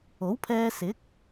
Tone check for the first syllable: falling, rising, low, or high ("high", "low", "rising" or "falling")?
rising